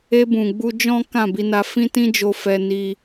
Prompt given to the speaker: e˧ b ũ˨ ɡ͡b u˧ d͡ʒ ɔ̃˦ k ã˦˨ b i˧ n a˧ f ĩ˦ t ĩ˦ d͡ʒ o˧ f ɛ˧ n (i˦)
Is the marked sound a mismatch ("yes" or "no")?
yes